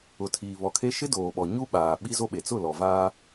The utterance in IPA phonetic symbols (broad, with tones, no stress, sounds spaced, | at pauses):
ʊ˨ tʰ iː˨ β ɔ˨ kʰ e˦ ʃ ɪ˦ d oː˨ ɓ ɔ˨ ɲ u˦ ɓ aː˨ ɓ i˦ z o˦ ɓ e˨ t͡s ʊ˦˨ l ɔ˨ v aː˦